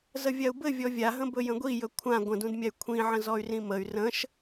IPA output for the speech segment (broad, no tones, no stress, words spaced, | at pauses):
zəvʲau̯bɘ vʲɔvʲaɦə̃ bɵjə̃ɡʷijɵ kʷʰã ɡʷə̃dũdmʲay̯ kʷʰĩʕə̃ zɔy̯rĩməy̯ rə̃ʃ